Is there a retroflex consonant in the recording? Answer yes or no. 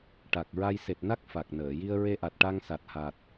yes